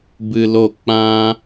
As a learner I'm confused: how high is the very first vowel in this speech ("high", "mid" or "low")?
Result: high